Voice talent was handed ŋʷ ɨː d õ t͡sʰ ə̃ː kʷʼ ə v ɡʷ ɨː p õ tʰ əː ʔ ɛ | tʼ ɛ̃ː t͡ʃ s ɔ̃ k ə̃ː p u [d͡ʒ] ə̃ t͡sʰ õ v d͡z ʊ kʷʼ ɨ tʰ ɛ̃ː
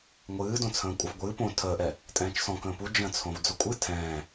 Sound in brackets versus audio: correct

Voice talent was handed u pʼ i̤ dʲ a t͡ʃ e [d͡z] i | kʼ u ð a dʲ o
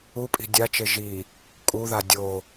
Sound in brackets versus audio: incorrect: ʒ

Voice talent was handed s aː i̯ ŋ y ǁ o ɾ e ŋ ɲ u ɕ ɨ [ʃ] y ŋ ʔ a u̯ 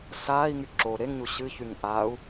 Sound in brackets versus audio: incorrect: ç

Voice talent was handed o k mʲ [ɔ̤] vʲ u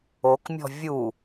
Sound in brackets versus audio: correct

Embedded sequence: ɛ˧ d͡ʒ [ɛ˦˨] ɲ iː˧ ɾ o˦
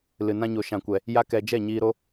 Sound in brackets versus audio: correct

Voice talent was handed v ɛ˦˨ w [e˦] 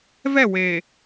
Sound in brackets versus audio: incorrect: e˨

